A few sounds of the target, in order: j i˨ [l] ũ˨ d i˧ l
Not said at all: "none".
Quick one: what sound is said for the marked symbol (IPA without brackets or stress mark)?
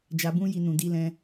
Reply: n